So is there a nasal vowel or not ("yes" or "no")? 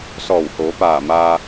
no